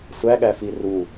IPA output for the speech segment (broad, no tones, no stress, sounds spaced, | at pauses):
sʷ æ ɠ æ f i r u